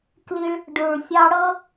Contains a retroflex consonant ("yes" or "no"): yes